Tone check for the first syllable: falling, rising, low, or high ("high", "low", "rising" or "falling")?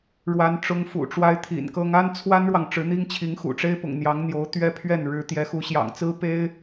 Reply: high